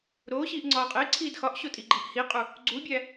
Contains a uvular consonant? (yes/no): yes